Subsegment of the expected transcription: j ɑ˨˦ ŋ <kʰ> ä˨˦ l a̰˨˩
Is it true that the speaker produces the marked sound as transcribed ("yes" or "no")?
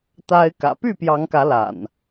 no